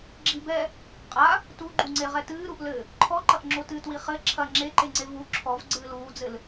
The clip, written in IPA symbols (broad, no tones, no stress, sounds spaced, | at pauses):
ɡ͡ǁ i b ɛ | qʼ a | t u ɡ͡ǃ u ŋ͡ǀ e ʁ ɛ t ɨː ɾ u ʔ l ɘ | ǃʰ ɔ ǃ ɐ ʔ ŋ͡ǁ o t ɨ t w i χ ɘ ǁʰ ɐ ŋ͡ǁ e ǃ e ŋ͡ǀ e v u ǁʰ ɔ v ɡ͡ǀ ɨː l uː d͡z ɘ l